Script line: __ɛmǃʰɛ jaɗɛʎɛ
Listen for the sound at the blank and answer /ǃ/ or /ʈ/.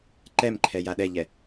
ǃ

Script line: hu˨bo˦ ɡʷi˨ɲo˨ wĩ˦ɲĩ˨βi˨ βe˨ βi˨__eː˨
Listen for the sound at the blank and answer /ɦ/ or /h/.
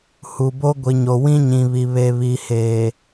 h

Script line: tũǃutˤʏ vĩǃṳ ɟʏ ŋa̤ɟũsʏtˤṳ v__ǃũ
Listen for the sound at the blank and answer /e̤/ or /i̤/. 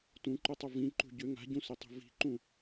i̤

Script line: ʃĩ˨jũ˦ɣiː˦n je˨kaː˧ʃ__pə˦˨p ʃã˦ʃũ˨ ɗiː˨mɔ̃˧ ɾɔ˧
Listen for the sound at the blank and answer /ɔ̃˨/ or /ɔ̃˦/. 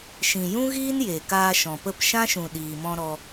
ɔ̃˨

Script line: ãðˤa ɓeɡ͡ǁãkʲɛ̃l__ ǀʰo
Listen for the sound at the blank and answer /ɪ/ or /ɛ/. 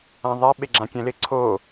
ɪ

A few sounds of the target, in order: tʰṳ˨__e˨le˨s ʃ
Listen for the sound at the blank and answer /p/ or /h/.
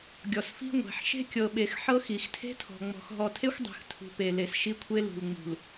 p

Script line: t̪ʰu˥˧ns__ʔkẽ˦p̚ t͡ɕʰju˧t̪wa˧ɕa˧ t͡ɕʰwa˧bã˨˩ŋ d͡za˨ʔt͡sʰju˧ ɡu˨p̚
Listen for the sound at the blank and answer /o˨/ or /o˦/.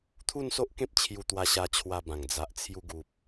o˦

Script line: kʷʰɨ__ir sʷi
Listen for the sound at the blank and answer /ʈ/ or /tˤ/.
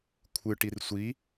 ʈ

